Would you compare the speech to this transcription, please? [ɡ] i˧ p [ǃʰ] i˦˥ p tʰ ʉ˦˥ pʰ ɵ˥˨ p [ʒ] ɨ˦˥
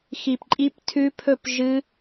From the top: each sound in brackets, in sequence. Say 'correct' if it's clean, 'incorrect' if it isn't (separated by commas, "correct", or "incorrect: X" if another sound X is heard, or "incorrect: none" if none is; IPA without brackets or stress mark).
incorrect: x, incorrect: ǃʼ, correct